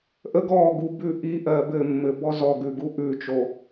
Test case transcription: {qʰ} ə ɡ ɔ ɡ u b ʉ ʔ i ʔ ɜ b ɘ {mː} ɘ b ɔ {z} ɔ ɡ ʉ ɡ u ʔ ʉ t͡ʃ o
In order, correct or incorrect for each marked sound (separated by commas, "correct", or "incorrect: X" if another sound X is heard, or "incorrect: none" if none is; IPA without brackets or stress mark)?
incorrect: ʔ, correct, correct